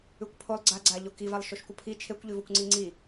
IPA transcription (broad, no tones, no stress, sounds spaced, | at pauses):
ʉ kʷ pʰ o lˠ ɡ͡ǀ a ɡ͡ǀ a ʎ o k i v a lˠ ʃ o ʃ kʷ ə pʰ i t͡ʃʰ e kʷ ʎ ʉ v o kʷ ŋ͡ǀ i ŋ͡ǀ i